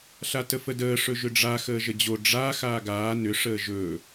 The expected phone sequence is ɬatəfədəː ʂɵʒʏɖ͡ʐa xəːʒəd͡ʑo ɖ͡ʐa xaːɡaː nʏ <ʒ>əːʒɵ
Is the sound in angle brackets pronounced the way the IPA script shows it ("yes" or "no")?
no